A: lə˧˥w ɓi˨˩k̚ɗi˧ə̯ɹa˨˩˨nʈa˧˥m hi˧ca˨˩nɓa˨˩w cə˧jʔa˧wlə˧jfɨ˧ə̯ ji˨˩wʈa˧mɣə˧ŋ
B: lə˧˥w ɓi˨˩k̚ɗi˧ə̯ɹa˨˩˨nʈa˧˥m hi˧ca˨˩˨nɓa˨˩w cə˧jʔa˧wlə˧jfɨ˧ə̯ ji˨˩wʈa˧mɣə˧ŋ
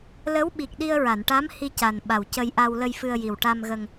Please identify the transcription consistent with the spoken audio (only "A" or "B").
A